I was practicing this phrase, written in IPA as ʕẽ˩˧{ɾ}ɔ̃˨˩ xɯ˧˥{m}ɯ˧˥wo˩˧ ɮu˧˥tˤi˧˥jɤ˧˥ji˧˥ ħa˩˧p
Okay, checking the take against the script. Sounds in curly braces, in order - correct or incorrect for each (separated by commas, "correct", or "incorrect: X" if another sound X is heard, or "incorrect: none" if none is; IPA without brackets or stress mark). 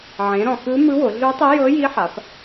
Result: correct, correct